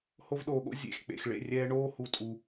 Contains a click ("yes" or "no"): no